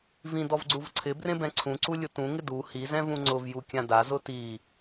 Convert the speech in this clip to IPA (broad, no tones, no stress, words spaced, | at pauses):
vĩ dɔvɡ͡ǀuvǀʰɪ brẽbɛ̃ǀʰũ ǀulʲʊtũ ŋɪdu hi zɛ̃vũŋ͡ǀʊv jukʲãda zʊti